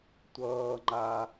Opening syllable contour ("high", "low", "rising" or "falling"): low